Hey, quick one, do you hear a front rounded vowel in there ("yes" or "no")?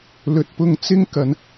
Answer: no